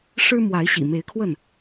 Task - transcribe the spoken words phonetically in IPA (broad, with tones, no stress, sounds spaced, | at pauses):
ʂ ɻ̩˦ m w a˨˦ ɪ̯ ɕ ḭ˨˩ m e˨˦ ɪ̯ kʰ w ə˥˨ n